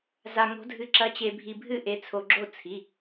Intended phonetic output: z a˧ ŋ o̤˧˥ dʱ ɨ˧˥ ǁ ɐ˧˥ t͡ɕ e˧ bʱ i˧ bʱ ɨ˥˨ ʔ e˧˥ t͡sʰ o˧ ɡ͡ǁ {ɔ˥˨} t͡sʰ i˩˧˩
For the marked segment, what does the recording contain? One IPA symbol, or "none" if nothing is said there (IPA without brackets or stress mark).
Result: o˥˨